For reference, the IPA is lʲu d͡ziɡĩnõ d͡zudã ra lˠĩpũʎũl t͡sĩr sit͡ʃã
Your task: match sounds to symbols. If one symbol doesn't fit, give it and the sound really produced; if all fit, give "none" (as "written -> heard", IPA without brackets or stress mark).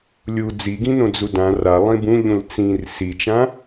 p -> b